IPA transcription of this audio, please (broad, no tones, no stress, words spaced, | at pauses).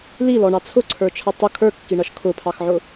lilɔɳɑ t͡sʰʊǀʰə˞t͡ʃʰʌ tˤʊ kʰə˞kːiɳʌʃ kʰʊpʰɑxʕʊ